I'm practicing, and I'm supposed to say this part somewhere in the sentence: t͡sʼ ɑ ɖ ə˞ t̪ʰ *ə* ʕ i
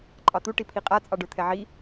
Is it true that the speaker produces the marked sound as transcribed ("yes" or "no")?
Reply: no